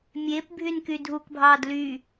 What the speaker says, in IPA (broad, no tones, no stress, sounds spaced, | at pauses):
mʲ e p bʱ y n k y dʱ u k bʱ ɑː d l y